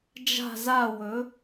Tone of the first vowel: falling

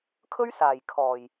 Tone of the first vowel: high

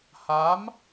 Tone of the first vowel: rising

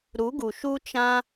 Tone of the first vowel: rising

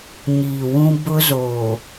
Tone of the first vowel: low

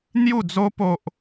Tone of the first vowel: falling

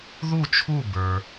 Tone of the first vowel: falling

